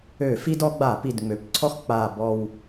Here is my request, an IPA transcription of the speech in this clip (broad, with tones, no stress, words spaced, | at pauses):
ø˧˩˧fi˦dɔ˩˧ ɡ͡ba˧˩˧pi˨˩dŋ͡mø˩˧pǀʰɔ˦x k͡pa˨˩ bɔ˨˩w